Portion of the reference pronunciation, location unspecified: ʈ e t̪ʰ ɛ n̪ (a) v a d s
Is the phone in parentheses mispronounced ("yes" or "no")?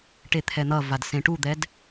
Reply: yes